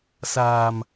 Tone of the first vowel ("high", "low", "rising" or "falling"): low